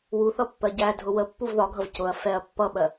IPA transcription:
w u θ ʌ pː ɜ ɟ æ dʱ ʊ w ə pː u v ð ɒ ɡʱ ʌ v c ʊ ɐ̯ f ɛ ɐ̯ pː ʌ ɓ ɜ

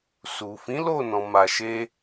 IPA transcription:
s u˨ f ĩ˨˦ l o˦˨ n ɔ̃˨ m a˨ ʃ e˧

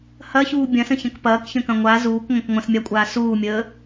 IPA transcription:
h ɐ ç uː bʲ ɐ̃ s ə̃ ç ɐ̃ k p ɐː k ç ə̃ k ɐ̃ ŋʷ a z uː k ŋʷ ɐ̃ k ŋʷ ɐ̃ s mʲ a kʷʼ aː s uː mʲ əː

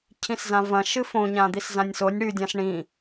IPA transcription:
cʰ ĩ s z ã v ɐ̃ ʃ ɨ f õ ɲ ã d̪ i s z ã nʲ s o nʲ ɽ ʉ dʲ ã s ɳ ĩ

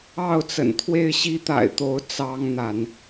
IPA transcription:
ɑ˥˨ ʊ̯ t͡s ə̰˨˩ n t̪ʰ w e˥˨ ɪ̯ ɕ i˦ t̪ a̰˨˩ ɪ̯ t̪ o˨˦ ʊ̯ t͡s ɑ˦ ŋ n̪ a˨˦ n

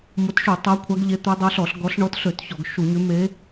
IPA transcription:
m o˨˦ t ʃ u˧˩˧ tˤ ɛ˨˦ kʷʰ a˨˦ ɡ ʎ e˨˦ t̪ ø˨˦ dˤ o˨˦ ɬ ɔ˧˩˧ ɬ ɡ ɔ˨˦ ɬ ɳ ɔ˨˦ t ɬ ø˧˩˧ t ç ɔ˧˩˧ ɡ ʃ u˧˩˧ ɲ ø˨˦ m e˨˦

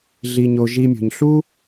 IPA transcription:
ɮ i˨ ɲ o˨ ʒ i˨ mʲ o̤˩ ɲ ɬ u˥

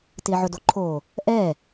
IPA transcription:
t ɪː ʕ ʊ d o ǃʰ oː | ʔ ɛː

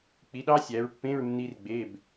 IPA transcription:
k͡p i˨˦ ɗ ɑ˦˥ sʲ æ˨˦ ɹ pː ẽ˧˥˧ ɹ nː i˦˥ r ɡ͡b e˧˥˧ b

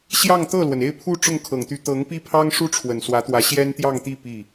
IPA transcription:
ɕ j ɑ˥˧ ŋ t̪ ɤ˥˩ l w ə˩ n e˥˧ ɪ̯ pʰ u˥˧ ʈ͡ʂ ʊ˥˩ ŋ kʰ ɤ˨˩ ŋ t̪ y˧˥ t̪ ɤ˧˥ ŋ p i˥ pʰ ɑ˥ ŋ ʂ u˥ ʈ͡ʂʰ w ə˨˩ n s w ä˧˥ t̪ w ä˧˥ ɕ j ɛ˥ n t̪ j ɑ˥˧ ŋ t̪ i˥˧ p i˥˩

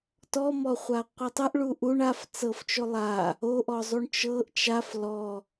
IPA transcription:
t ɔ m ɔ χʷ a qʷ ɤ tˤ ɤ ʔ ɭ u ʔ u ɳ a f t͡s ɤ f t͡ʃ o lˠ a | o ʔ ɔ zˤ u ɳ t͡ʃ ɤ ʔ t͡ʃ a f l ɔ

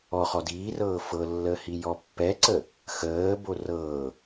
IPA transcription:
ɔ χ ɔ d iː r ɤː f ɤ lː əː h i j ɔ pː ɛ ǀ ə | x əː b o r ɤː

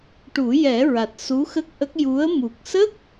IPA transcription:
ʈ u˨˩˦ j ɛ˨˩˦ ɹ a˨˩ t̚ s u˧˥ x ə˦˥ k̚ ʔ ə˦˥ k̚ j u˧˥ ə̯ m u˨˩ k̚ s ə˦˥ k̚

